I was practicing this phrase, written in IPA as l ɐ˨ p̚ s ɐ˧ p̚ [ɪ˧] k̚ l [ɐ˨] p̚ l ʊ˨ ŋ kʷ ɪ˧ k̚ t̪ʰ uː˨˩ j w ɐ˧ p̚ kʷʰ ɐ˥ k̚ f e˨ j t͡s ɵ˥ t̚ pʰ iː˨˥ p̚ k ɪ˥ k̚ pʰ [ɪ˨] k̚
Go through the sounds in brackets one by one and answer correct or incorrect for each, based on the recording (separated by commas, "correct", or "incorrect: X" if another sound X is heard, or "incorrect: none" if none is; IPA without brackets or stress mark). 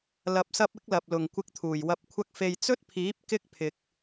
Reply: incorrect: ɪ˨˥, correct, correct